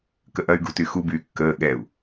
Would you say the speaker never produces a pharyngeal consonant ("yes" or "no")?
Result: yes